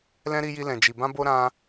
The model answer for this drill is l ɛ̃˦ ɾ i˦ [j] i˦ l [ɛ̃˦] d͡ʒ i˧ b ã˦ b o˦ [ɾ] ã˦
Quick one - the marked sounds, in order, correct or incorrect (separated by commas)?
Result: correct, incorrect, correct